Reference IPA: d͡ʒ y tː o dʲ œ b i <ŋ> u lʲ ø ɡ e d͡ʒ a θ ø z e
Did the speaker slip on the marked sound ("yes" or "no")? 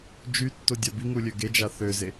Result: no